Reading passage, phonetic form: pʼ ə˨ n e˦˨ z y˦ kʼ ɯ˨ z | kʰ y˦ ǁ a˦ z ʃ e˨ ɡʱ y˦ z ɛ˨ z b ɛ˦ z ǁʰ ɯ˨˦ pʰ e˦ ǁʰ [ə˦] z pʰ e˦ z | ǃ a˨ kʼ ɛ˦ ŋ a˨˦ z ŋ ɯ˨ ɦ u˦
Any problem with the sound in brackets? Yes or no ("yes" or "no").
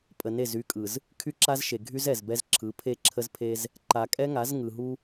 no